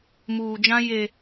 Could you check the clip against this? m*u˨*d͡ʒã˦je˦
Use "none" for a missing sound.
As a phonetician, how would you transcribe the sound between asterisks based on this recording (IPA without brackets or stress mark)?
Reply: uː˨